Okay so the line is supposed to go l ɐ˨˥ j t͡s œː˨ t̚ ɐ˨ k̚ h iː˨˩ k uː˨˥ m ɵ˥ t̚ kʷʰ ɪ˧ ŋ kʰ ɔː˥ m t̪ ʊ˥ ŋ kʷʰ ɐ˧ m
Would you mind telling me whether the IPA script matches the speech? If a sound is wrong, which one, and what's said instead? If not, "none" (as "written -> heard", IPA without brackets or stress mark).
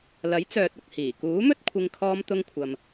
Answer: none